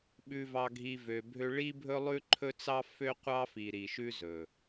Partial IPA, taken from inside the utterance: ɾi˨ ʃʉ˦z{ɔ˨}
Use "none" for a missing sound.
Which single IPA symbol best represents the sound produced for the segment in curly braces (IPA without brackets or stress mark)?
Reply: ɵ˨